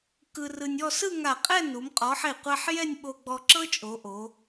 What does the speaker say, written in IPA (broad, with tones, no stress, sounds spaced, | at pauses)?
k ɯ˧ r ɯ˧ nʲ ɔ˥˧ s ɯ˥˧ ŋ a˧˩ qʼ ɛ˥˧ n u˩˧ m qʼ ɔ˩˧ ħ e˧˩ qʷ ɛ˧ ħ j ɛ˥˧ nʲ ɓ o˧ ɡ͡b ɔ˧ ǁ ɤ˥ t͡ʃʼ o˩˧ ʔ o˩˧